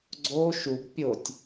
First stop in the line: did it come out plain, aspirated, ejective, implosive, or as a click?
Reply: click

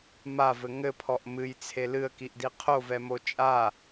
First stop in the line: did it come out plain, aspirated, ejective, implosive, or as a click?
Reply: aspirated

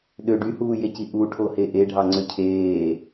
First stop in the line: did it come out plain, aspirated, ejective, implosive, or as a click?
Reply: implosive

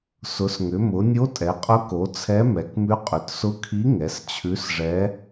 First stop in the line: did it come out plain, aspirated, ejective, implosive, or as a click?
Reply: ejective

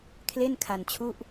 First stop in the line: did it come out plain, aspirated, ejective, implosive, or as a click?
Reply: aspirated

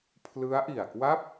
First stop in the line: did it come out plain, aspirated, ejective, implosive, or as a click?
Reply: aspirated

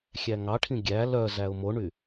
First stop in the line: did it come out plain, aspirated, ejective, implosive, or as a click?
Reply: aspirated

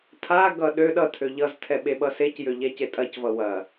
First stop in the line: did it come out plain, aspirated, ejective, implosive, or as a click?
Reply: aspirated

